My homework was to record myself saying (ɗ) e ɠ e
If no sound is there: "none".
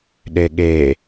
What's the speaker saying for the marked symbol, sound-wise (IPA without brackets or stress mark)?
ɗ